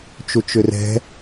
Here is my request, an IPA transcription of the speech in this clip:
t͡ʃ u t͡ʃ ʏ r ɛ̤

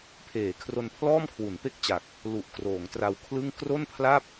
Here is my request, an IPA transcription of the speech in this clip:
pʰ eː˩˦ kʰ r o˧ n pʰ l ɔː˥˩ m kʰ w u˩˦ n p e˥˩ k̚ t͡ɕ a˨˩ k̚ | l u˨˩ ʔ k r oː˩˦ ŋ t r a˧ w kʰ l ɯ˥˩ ŋ k r o˥˩ n pʰ l a˥˩ p̚

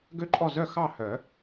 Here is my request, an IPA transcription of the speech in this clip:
ɡ ø˥˩ ǃʼ ɔ˥˩ z œ˥˩ x ɑ˥˩ h œ˨˩˦

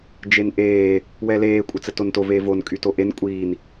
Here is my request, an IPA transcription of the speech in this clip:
d͡ʒ e n ʔ eː | w ɛ l eː kʷʼ ə t͡s ə t o n t o v eː v o n kʼ y t o ʔ e n kʷʼ iː n

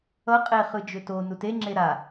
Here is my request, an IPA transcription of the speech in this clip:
ʌ qʼ e χ ɯ d͡ʒ ʏ t o n u t e ŋ͡ǁ e ɾ a

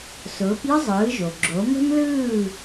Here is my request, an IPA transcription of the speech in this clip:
s ʊː˩˥ p j ə˥ zˤ ɯː˩˥ ʒ o˩ ɡ͡ǁ o˩˥ m ə̤˥ m l ɯː˥˩

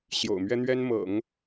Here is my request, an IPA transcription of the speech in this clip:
ɕ j o̰˨˩ ʊ̯ m ɥ ɛ˥ n̪ ɥ ɛ˥ n m ɤ̰˨˩˦ ŋ

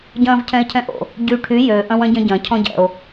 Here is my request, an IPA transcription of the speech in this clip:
ɟ ɐ̃ː v cʰ ɛ̃ e̯ cʰ ɛ̃ ʔ o̰ | ɟ y ʈʰ y j ø ʔ ɐ̃ w ɐ̃ ɟ ɐ̃ ɟ ɐ̃ cʰ ɔ̃ ɟ ɛ̰ o̯

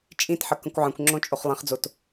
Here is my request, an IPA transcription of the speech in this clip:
t͡ʃʼ ĩ t ħ ə k ə̃ kʷ ʕ ə̃ kʷ ŋ͡ǁ õ t͡ʃʼ o χ lˠ ĩ χ d͡z o t

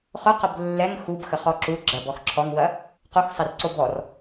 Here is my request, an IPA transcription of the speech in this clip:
χ ʊ q ə b lː ɛ ŋ x u b x ə χ ɔ ǁ u ɡ͡ǁ ɐ b ɔ x ǁʰ ɔ ŋ w ɐ | q u x sˤ ɪ r ǀ o b ɔ r

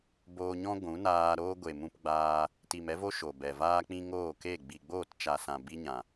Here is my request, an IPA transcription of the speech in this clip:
b oː˧ ɲ ɔ̃˦ ɡʷ ũ˨˦ n aː˧ ɾ oː˦ ɡʷ e˨ m ũ˧ p ɡ͡b aː˧ | t i˨ m ɛ˦ v o˦ ʃ o˨ b ɛ˨ v aː˧ k͡p ĩ˧ ŋ oː˦˨ k e˦˨ ɡ͡b i˨ ɡ͡b oː˦˨ t t͡ʃ a˨ s ã˨ b i˦ ɲ ã˨

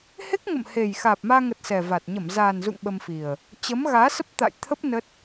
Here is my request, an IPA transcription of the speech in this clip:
h e˦˥ k̚ ŋ ə̰˧˨ m h e˨˩ j x aː˨˩ p̚ m aː˧ ŋ ə˨˩ t̚ s ɛ˨˩ v a˨˩ t̚ ɲ ə˧˩ m z aː˨˩ n z ṵ˧˨ ŋ ɓ ə˧ m f i˨˩ ə̯ | t͡ɕ ə˨˦ m ɣ aː˨˦ s ə˦˥ p̚ t̪ a̰˧˨ j t̪ʰ ə˦˥ p̚ n ə˦˥ t̚

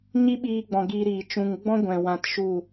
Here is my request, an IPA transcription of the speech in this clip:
ɲ i˦ ɓ iː˧ ɡ͡b ɔ̃˨ ɡ iː˧ ɾ iː˨ t͡ʃ ũ˨ ŋ ɡ͡b ɔ̃˦ ɡʷ ɛ̃˨ w ã˧ t ʃ u˦˨

